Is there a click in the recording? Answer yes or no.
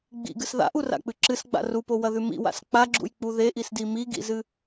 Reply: yes